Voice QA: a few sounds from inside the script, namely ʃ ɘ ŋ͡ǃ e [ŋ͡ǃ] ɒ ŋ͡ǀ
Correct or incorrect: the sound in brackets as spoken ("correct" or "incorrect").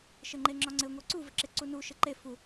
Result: incorrect